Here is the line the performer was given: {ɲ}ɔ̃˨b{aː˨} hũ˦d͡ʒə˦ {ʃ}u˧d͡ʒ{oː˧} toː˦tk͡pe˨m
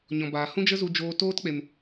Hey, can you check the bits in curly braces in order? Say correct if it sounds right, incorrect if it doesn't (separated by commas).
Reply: correct, correct, incorrect, correct